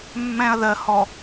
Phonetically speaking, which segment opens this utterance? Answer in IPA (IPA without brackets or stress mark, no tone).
mː